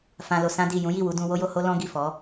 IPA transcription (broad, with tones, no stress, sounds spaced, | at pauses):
f ã˧ l o˧ s ã˦ d i˦˨ j ũ˨˦ j i˦˨ w u˨˦ d ũ˧ w o˦ j o˧ h o˦ l ɔ̃˦ ɡ i˦˨ f ɔ˨˦